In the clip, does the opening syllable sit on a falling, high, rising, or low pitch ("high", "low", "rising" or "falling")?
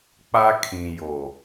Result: high